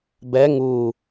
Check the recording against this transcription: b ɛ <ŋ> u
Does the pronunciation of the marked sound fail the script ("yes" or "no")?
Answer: no